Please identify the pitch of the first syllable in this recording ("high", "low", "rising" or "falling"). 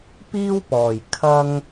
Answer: high